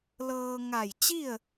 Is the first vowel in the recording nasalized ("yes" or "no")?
no